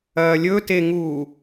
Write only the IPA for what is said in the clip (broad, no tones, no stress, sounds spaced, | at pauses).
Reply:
ɐː lʲ ɵ t e ŋ uː